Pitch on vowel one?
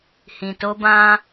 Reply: low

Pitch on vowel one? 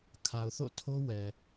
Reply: low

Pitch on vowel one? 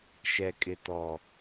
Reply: low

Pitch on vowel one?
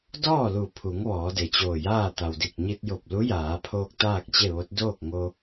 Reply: falling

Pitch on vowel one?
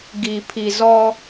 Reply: low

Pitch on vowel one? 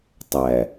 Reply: low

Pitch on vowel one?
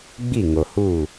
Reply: falling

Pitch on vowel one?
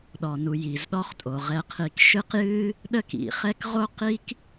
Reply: low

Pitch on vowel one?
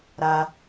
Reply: high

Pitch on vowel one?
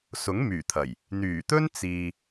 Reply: rising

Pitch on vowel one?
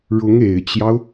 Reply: rising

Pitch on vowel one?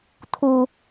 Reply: high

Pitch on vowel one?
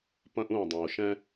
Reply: high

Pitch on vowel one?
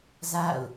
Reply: falling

